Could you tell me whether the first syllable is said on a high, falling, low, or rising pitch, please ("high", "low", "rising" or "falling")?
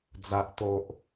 low